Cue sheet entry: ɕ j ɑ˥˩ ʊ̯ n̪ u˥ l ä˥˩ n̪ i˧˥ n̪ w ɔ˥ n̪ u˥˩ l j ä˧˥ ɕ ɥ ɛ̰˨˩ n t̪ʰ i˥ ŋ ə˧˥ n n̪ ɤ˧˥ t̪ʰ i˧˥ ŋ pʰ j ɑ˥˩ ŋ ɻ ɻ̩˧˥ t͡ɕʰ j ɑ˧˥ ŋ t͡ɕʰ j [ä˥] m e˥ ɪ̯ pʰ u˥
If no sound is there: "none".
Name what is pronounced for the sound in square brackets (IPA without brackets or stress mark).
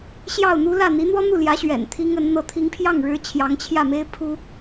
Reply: ä˥˩